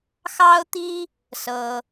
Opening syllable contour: high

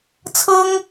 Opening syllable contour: high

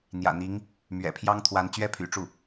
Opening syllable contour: low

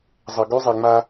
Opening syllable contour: low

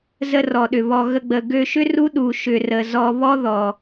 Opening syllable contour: high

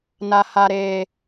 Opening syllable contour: low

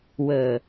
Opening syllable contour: low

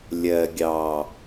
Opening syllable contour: low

